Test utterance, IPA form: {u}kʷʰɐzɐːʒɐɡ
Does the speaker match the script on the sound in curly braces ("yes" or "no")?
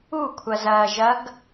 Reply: yes